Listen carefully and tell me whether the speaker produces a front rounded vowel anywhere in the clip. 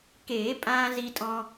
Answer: no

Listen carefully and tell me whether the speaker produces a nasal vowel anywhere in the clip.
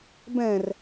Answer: yes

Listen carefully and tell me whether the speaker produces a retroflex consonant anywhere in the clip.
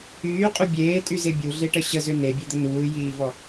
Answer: yes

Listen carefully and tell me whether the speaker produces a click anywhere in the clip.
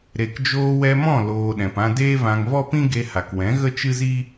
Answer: no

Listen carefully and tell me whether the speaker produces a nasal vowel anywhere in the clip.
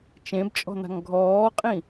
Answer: yes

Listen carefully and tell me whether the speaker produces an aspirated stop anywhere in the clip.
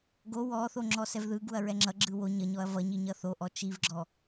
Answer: no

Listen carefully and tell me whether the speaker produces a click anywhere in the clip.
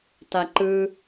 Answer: yes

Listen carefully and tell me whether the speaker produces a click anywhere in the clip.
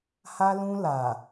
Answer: no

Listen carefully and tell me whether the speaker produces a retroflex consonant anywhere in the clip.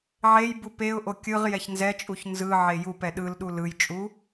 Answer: no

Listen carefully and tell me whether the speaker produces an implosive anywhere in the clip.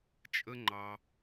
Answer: no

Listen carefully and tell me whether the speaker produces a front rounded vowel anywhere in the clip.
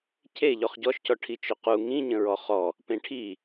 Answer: yes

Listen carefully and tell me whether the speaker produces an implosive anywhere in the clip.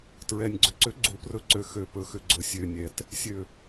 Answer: no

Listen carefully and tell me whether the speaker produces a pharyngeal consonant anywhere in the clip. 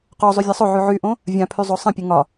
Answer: yes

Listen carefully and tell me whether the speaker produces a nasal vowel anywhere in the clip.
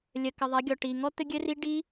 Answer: no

